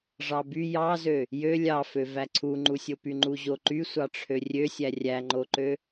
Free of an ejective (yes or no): yes